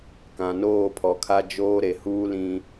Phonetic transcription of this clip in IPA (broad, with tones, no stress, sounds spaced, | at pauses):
k ã˨ n oː˦˨ pʰ ɔ˨ kʰ a˨ d͡ʒ oː˦ ɾ e˨ h uː˦ l ĩ˦